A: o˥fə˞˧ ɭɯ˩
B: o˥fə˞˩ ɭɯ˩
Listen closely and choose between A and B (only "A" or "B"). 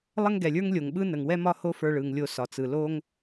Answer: A